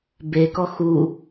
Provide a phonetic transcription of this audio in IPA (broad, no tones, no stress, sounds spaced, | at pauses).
b e k ɔ x u